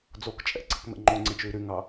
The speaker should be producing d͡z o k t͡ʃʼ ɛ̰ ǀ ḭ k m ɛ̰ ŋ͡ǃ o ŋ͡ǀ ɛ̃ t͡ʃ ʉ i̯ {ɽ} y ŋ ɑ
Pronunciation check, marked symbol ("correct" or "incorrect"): incorrect